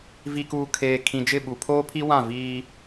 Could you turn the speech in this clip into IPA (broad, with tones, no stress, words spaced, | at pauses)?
vi˨kuː˨ kʰeː˨ kʰĩ˨d͡ʒɪ˦˨ ɓu˨ pʰoː˦pʰi˦wã˦˨ viː˦